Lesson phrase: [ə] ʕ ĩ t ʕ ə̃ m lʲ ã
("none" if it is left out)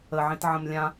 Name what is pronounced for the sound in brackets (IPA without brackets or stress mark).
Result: ə